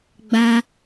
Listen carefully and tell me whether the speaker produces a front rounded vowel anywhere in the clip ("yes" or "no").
no